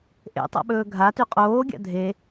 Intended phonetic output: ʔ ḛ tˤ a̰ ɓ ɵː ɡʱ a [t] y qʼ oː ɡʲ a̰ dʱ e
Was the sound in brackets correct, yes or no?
yes